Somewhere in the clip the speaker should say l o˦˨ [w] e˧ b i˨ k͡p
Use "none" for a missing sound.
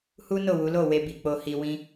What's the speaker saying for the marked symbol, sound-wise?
w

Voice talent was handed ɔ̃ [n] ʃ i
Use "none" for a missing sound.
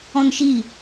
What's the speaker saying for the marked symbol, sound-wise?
n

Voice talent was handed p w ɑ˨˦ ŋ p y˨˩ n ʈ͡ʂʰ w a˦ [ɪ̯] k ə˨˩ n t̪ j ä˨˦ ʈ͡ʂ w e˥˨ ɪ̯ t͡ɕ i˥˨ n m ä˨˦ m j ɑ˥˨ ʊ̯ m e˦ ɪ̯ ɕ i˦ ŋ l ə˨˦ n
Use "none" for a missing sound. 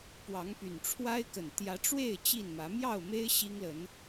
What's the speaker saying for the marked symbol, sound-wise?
ɪ̯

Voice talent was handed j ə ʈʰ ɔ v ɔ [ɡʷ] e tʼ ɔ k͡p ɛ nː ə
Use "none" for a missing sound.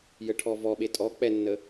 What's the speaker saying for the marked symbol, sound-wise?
ɓ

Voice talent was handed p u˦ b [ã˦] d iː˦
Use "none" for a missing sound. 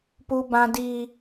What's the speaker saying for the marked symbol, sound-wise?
ã˦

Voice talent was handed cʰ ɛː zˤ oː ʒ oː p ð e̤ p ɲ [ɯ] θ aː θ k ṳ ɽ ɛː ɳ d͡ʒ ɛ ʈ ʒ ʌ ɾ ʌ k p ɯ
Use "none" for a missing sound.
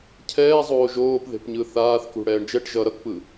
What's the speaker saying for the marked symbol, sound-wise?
ɯ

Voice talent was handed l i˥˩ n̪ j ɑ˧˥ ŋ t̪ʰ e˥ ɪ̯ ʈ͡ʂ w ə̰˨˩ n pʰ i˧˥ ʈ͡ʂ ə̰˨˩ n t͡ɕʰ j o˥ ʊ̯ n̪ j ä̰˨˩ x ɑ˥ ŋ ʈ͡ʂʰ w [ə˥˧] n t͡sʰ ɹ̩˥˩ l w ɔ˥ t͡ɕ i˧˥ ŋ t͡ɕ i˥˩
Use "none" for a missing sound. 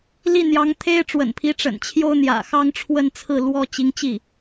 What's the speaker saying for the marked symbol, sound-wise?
ə˥˧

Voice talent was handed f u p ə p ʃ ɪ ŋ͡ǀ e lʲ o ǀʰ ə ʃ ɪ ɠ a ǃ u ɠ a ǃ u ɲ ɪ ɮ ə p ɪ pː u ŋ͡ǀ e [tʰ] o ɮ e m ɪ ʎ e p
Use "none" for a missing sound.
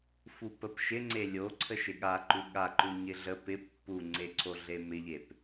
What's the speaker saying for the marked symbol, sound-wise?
ǀʰ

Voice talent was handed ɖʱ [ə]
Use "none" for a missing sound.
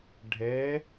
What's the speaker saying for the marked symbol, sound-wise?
ɛ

